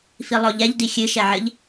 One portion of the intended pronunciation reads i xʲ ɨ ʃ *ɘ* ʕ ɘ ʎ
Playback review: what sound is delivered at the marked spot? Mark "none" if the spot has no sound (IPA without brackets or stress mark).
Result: ɛ